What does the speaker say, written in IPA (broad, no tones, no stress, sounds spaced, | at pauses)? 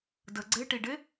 d ə ɡ͡ǀ e ʈ i ɖ e